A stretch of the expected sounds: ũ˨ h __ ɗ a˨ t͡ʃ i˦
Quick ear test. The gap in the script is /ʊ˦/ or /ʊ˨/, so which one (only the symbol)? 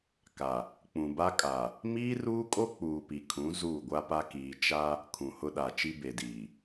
ʊ˦